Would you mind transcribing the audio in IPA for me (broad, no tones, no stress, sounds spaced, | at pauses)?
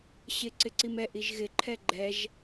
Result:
ɕ ɪ ǀ ɪ ǀ i m ɛ ʔ i ʒ ɣ ɪ ǃʰ ɛ ɡ͡ǃ ɛ ʒ